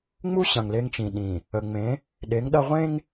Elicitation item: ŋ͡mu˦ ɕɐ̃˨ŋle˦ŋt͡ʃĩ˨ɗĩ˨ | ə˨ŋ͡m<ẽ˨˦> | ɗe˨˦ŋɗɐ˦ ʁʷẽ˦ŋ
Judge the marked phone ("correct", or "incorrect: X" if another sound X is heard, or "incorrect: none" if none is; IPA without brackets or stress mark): correct